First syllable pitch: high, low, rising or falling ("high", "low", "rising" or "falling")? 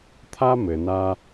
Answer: high